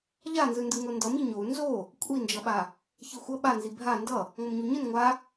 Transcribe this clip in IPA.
ʎ a n z ɯ n d ɯ ŋ o n d ʌ m i ɲ o u̯ n z o | kʷʼ i n d͡ʒ ʌ ɓ a | ç i xʷ ʌ ɓ a n z i bʱ a n d ʌ | ŋ ʌ m ɲ u ɲ ɯ n ŋʷ a

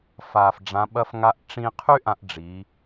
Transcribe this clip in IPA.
f aː˩ f ɖ͡ʐ ã˩˧ ɓ ɐ˧ f ŋ a˧ ʔ ʈ͡ʂ ĩ˧ qʰ y˥ ʔ ã˧ ʔ ɖ͡ʐ i˩˧

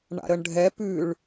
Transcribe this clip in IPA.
ɳ a̰ ɾ ə ɳ ɖʱ ɛ p ʉ ɭ

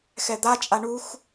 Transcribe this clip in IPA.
x ɛ d̪ a t͡ʃʼ a ɳ u x

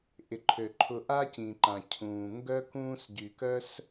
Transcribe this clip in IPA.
ʔ ɪ˩ ǃʰ ø˩ ǃʰ ʊ˨ ʔ a˥ c ĩ˩ ǃ ã˩ cʰ ũː˩ ŋ ɡ œ˥ k ũː˦ s ɟ y˨ k œ˥ s

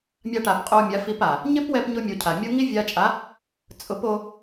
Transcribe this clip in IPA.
mʲ a˧ ʈ a˨ p qʼ o˧ mʲ a˨˦ f i˧ p a˨ | ɲ ɪ˦ p w ɛ˧ p ɲ ʊ˧ mʲ o˨ cʰ a˨ mʲ o˦ ŋ i˦ vʲ a˧ t͡ʃʼ a˨˦ | t͡sʼ ʊ˨˦ p o˧

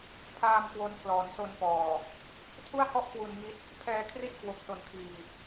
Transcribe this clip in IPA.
pʰ aː˧ m k w o˦˥ n pʰ l ɔː˩˦ n s o˧ n p ɔː˨˩ | tʰ u˥˩ a̯ h ɔ˥˩ ʔ k w u˧ n ŋ i˦˥ t̚ | pʰ ɛː˧ kʰ r i˥˩ t̚ k w o˦˥ k̚ s o˧ n kʰ iː˧

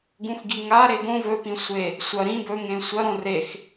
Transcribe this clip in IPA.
ɡ ũ x ɡ i ŋ a ɾ e ɡ õ v ɵ p ĩ sʷ e | sʷ ɐ ɾ ĩ b ɵ ŋ ẽ sʷ ɐ ɾ õ r e x

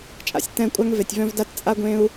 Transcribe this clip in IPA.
t͡ʃʼ a̰˨ sʲ t ɛ̃˦˨ kʷʼ a˦ ŋ v e˨ tʲ v œ̃˦ v d a˦ t t͡sʼ a˦ ɡʷ ẽ˦ u̯

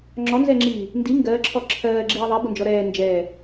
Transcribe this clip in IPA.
ŋ͡ǁ ɔ n z ɛ ŋ͡ǁ iː | n d i ŋ ɡ ɜ ǁʰ ɔ ǁʰ ɜː ɡ͡ǁ iː ðˤ ɛ b ʊ n d͡ʒ ɔ ɾ ɛː n d͡ʒ ɛː

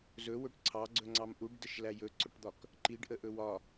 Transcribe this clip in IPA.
z ɵ w ɵ ʈ ǀʰ ɑ ɡ͡ǀ ɵ ŋ͡ǀ ɑ m ʔ u ɖ d ə ʃ l æ j ɵ ǀ ɵ ʈ d̪ ɒ k | ǃ i ɖ ʔ ə ʔ ɵ w ɒ

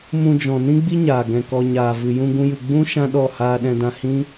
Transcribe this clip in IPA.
m ũ˧ d͡ʒ ɔ̃˨ n ĩ˦ ɡ͡b i˦ ɲ aː˨ ɡ ɛ̃˨ k ɔ˨ ɲ aː˨ v ɨ˨ j ũ˧ ɡ ũ˦ j ɨ˧ ɡ͡b ũ˦ ʃ ã˦ ɗ ɔ˦˨ h aː˧ ɗ ɛ̃˧ d ã˧ h ĩ˦

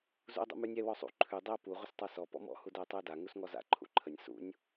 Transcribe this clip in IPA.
z ṵ ə̯ dˤ ṵ m ʉ nʲ ɛ w ɔ sˤ ṵ ǃʰ ʉ dˤ ɛ ə̯ p u ʁʷ ə s tˤ a s ɔ p ɔ̰ m ɔ̰ h u d ɛ ə̯ tˤ ʉ ə̯ d a ŋ u s ŋ ɔ z a̰ ǃʰ ṵ ǃʰ ə nʲ s ṵ nʲ

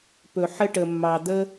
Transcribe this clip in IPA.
p ɵ˧ ħ ə˥ ʈ ə˧ mː ɑ˧ d̪ ə˥

